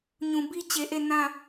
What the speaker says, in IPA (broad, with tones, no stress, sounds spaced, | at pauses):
ɲ ũ˨ b i˦ t͡ɕ e˨ ʔ e˦˨ n ã˦˨